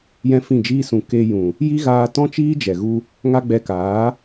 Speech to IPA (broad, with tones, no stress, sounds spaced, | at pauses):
j ɛ̃˦ f ĩ˦˨ d͡ʒ iː˦ s ũ˧ k e˧ j ũ˨ | j i˦ ɣ aː˧ t ɔ̃˦ t͡ʃ iː˦ d͡ʒ ɛ˨ ɣ u˧ | ŋ a˦ ɡ͡b ɛ˧ k aː˨˦